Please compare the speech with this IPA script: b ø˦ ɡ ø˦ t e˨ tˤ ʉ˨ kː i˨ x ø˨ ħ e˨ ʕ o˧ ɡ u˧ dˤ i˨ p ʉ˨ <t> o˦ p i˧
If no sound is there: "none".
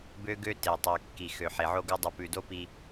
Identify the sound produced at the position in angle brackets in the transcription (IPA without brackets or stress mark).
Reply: d